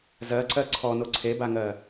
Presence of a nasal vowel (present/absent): absent